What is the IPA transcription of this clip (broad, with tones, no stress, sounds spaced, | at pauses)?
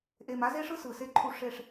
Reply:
ʔ e˨ m a˦ z e˦ ʂ ɯ˦ s ɯ˨ s e˦ ǃʰ u˦ ʂ e˦˨ ʂ